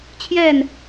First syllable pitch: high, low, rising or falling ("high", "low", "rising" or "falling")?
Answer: falling